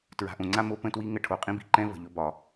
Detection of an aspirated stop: present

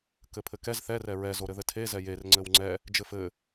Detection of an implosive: absent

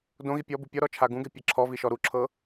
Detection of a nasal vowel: present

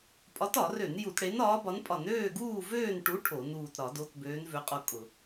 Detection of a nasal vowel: absent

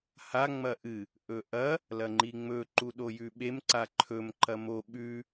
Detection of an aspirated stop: present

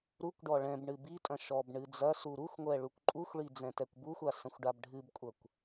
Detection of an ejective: present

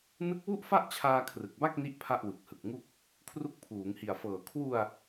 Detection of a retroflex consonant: absent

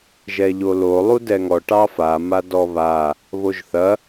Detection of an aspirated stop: absent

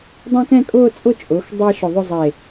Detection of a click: absent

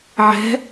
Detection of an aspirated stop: absent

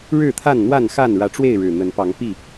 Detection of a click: absent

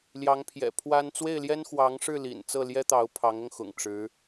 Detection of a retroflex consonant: present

